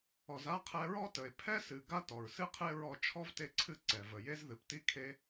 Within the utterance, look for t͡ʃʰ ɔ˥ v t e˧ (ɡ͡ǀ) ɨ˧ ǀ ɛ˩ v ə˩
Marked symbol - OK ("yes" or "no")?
no